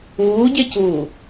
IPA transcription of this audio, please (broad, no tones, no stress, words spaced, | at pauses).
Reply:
uːɟecuː